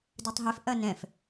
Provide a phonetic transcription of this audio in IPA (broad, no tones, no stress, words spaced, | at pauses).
dɨtˤɦef ʔɐnɛ̃f